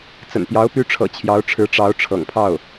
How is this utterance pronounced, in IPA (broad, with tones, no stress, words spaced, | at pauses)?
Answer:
t͡sə̰˨˩npjɑ˧˥ʊ̯ py˧˥ʈ͡ʂʰɤ̰˨˩ t͡ɕʰjɑ˧˥ʊ̯ʈ͡ʂʰɻ̩˧˥ ʈ͡ʂɑ˧˥ʊ̯ʈ͡ʂʰɤ̰˨˩ŋpʰɑ˥˩ʊ̯